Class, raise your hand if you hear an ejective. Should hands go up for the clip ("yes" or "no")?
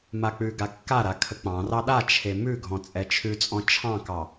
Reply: yes